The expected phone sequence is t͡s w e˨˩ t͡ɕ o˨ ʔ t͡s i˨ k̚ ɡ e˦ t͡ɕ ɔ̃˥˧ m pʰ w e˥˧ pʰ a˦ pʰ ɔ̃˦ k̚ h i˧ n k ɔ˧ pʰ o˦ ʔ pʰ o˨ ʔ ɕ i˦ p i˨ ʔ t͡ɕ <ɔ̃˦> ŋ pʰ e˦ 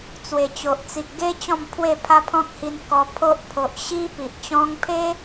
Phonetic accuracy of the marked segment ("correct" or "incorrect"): correct